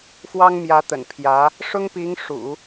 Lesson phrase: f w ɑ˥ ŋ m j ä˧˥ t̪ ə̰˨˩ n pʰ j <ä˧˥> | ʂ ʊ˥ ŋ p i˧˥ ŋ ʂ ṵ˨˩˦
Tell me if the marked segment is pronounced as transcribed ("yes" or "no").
yes